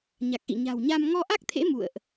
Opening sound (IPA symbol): ɲ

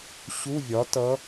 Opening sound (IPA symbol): ɕ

